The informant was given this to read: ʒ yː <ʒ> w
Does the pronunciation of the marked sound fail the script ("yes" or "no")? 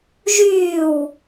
yes